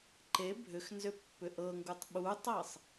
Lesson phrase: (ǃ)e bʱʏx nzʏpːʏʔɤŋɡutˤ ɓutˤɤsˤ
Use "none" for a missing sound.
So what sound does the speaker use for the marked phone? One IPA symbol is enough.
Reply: ǃ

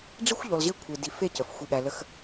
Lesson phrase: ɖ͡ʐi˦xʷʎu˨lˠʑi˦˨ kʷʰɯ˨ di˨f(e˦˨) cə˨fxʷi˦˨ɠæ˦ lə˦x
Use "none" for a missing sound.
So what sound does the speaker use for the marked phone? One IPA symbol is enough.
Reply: e˦˨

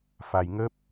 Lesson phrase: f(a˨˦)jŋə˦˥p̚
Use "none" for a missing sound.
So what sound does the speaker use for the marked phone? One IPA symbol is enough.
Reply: a˨˩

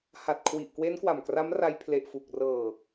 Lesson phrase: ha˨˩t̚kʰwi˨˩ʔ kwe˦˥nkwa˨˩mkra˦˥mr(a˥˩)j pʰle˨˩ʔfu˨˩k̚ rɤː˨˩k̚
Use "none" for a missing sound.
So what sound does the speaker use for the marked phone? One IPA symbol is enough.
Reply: a˧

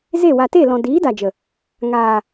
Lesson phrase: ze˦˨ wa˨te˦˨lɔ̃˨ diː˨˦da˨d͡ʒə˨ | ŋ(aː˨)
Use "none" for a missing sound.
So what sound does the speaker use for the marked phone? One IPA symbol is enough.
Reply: aː˨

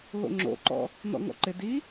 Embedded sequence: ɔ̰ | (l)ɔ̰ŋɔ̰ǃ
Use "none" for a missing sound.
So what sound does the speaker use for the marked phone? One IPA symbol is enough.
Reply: n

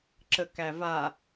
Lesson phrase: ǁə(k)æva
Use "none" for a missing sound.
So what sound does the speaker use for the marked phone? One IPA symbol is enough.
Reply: k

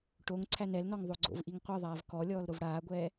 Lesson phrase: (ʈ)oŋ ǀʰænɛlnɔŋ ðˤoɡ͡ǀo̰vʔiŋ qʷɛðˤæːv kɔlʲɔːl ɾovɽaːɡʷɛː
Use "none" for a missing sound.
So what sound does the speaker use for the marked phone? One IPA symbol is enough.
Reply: ʈ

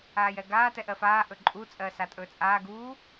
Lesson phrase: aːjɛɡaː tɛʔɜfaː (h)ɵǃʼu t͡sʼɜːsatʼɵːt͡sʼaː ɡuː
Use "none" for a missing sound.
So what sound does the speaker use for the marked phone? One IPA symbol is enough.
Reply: ʔ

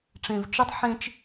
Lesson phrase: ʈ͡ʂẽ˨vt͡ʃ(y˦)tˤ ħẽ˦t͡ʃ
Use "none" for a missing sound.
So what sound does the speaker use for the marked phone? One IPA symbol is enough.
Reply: ɨ˦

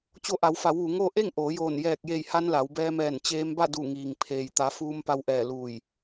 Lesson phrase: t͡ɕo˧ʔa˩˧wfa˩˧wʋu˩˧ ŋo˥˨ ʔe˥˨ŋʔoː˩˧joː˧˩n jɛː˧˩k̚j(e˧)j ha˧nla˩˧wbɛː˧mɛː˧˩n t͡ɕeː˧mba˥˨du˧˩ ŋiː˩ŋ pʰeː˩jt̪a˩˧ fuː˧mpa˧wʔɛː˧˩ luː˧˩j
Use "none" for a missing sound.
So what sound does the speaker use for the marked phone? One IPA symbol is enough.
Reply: e˧˩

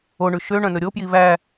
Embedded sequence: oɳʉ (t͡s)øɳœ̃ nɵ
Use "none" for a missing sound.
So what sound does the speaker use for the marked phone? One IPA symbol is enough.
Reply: ʃ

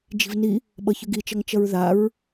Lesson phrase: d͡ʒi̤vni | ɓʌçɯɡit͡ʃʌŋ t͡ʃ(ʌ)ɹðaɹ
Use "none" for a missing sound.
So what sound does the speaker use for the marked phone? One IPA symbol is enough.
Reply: ʌ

